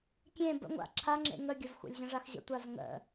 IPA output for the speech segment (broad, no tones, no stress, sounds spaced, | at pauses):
kʲ ẽ b ə̰ ŋʷ a̰ ǁʰ a ŋ͡ǁ ḛ ŋ ə ɡʲ ɐ v xʷ a̰ lʲ ʑ ə̃ ʐ a x ʑ ə̰ tʷ a v ŋ ə̰